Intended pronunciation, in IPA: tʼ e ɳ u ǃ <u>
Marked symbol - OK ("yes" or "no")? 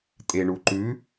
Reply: no